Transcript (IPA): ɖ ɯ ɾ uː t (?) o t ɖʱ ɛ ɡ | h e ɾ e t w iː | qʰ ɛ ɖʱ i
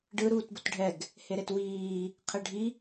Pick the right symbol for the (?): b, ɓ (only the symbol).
b